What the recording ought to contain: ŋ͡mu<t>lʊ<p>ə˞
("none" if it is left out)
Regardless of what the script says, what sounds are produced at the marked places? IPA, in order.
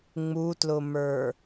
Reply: t, m

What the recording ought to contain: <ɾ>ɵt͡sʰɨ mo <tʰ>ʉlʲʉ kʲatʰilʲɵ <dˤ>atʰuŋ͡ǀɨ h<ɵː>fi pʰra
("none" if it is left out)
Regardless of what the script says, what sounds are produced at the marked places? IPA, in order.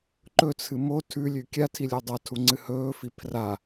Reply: ǃ, tʰ, dˤ, ɵː

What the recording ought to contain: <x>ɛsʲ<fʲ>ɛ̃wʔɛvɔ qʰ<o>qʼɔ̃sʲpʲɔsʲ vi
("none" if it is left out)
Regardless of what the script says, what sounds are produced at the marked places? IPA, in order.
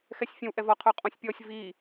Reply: x, fʲ, o

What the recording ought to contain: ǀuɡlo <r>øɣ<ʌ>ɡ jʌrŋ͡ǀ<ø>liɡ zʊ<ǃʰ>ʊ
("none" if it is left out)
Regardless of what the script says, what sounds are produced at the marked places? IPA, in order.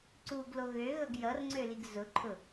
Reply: ɣ, ʌ, ø, ǃʰ

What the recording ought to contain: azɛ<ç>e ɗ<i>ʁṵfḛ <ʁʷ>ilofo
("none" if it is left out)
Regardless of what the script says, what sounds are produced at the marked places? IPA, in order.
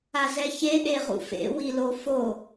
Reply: ç, e, w

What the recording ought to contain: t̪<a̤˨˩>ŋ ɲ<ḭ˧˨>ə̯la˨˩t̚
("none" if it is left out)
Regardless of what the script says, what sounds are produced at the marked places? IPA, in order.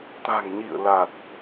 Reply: a̤˨˩, ḭ˧˨

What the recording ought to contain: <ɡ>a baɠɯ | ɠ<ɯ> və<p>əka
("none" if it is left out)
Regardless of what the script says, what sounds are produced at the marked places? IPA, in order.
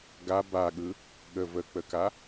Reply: ɡ, ə, k͡p

